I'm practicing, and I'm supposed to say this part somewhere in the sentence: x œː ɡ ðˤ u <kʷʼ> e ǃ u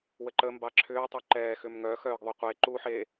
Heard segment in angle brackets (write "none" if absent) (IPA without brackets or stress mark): qʷ